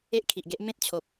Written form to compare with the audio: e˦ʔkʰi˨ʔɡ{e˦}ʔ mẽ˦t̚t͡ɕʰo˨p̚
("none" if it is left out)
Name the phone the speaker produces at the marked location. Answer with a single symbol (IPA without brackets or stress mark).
e˦